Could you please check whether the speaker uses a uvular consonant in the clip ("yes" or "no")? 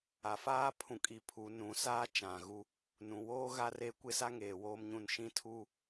no